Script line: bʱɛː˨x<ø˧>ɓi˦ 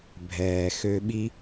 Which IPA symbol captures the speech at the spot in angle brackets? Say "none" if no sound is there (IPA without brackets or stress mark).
ø˧